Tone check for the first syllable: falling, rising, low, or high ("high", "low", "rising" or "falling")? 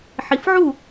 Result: low